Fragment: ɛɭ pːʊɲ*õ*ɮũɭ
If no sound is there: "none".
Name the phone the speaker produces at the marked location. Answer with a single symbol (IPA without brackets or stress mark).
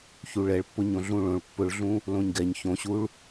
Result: õ